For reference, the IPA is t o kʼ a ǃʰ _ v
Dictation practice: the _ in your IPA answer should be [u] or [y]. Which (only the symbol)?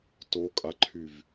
y